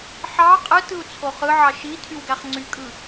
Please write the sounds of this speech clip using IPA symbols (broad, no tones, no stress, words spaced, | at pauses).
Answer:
ħɑ qʼɯtɯu̯ t͡sʰoχɯʕɑ ʃi tʰywɡæχŋ͡ǀykʼɯ